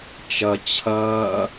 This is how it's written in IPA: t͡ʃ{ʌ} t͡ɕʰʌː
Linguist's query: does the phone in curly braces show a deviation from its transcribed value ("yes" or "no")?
no